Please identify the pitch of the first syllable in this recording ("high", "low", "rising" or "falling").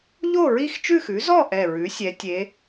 falling